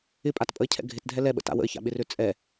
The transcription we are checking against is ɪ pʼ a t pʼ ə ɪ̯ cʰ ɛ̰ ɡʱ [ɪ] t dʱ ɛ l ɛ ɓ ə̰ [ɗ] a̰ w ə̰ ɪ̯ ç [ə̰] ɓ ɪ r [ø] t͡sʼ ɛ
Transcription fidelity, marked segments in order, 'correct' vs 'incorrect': correct, incorrect, incorrect, correct

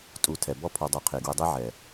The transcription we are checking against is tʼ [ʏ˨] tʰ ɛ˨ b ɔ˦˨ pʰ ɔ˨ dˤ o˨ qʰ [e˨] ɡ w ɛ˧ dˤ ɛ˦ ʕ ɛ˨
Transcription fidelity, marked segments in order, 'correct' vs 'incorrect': incorrect, correct

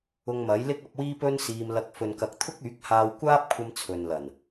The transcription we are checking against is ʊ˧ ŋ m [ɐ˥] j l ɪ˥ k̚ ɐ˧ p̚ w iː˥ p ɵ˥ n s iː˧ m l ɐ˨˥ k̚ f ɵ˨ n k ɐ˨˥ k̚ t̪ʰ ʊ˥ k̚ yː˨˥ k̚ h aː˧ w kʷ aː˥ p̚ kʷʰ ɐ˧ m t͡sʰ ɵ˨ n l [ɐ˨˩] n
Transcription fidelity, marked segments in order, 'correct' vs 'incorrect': incorrect, correct

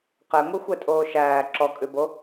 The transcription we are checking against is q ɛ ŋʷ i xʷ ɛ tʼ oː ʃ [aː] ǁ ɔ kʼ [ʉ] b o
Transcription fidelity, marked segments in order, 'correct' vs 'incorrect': incorrect, correct

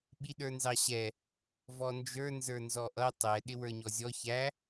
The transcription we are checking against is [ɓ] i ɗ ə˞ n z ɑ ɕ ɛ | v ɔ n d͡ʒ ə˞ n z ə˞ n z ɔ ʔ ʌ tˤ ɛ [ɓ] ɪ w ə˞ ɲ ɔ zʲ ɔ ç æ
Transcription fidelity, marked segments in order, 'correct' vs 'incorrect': correct, incorrect

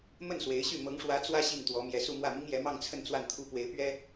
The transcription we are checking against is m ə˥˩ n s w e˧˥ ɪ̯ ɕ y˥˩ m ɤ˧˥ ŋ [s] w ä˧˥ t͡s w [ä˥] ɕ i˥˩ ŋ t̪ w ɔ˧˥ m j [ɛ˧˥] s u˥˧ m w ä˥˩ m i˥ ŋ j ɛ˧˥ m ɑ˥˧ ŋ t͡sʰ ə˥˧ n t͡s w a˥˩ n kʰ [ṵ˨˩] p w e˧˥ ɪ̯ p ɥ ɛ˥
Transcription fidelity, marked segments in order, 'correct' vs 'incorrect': incorrect, correct, correct, incorrect

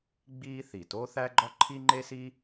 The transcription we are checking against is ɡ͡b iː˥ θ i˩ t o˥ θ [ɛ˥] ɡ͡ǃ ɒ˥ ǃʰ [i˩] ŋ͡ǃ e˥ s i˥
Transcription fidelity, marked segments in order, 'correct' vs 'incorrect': incorrect, incorrect

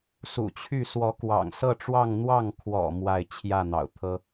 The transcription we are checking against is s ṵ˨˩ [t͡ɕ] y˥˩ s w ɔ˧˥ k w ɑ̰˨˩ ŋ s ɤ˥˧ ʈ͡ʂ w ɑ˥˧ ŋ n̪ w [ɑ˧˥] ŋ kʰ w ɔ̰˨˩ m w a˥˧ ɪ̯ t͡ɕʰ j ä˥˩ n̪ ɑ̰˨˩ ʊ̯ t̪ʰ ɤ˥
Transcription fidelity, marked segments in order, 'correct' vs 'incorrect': incorrect, incorrect

